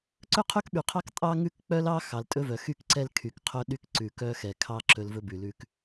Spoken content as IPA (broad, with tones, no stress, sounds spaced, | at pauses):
ǀ ɵ˦ qʰ ɵ˦ k ɓ y˨ qʰ ɑ˦ k tʼ ɑ˦ ŋ ʉ˦ k k͡p œ˦ l ɑ˦ x ɑ˨ l tʼ ɵ˦ v œ˨ x y˦ k ǀ ɛ˦ l kʰ y˨ k qʰ œ˦ ɗ y˦ k ǀ ʉ˨ k œ˦ x ɛ˨ kʰ ɑ˦ ǁ ɵ˦ l v ɵ˦ b ʉ˨ l ʉ˦ k